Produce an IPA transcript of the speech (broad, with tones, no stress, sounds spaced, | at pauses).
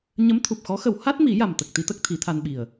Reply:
ɲ ə˧˥ m t̪ʰ u˨˩ p̚ x ɔ˧˥ x ə˨˩˦ w h a˦˥ t̚ m i˨˩˦ j a˨˩ m t̪ ə˨˩ k̚ t̪ i˧˥ t̪ ə˦˥ k̚ t̪ʰ i˨˩˦ t̪ʰ a˧ n ɓ i˨˩ ə̯